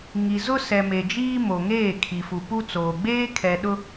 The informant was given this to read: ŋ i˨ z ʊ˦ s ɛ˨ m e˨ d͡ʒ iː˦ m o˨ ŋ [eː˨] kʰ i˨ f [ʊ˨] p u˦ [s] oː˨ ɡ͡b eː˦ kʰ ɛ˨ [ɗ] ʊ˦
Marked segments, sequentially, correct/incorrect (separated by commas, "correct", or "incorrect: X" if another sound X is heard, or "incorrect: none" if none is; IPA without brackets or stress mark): incorrect: eː˦˨, incorrect: u˨, incorrect: t͡s, correct